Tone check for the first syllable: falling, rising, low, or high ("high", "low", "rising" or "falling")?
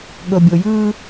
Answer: low